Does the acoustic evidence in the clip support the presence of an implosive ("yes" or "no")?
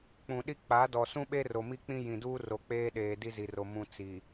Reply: yes